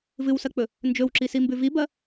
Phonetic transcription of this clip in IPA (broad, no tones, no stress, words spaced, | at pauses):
vɨwsɐk͡pɵ | nd͡ʒɵwǁisimbʉ vibɐ